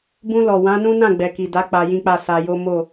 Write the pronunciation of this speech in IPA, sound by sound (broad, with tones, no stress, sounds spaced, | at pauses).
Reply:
b ũ˧ l ɔ˨ w ã˨˦ n ũ˦ n ã˦˨ ɡ͡b ɛ˨ k i˨ d a˨˦ k͡p a˧ j ĩ˦ k͡p a˦˨ s a˧ j o˦ m o˦˨